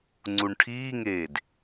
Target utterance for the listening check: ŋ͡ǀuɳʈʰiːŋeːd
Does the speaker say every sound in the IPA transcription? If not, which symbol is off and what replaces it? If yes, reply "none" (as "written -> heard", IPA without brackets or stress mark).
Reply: none